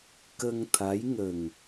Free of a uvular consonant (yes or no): yes